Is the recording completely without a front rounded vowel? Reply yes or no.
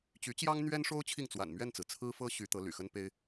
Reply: no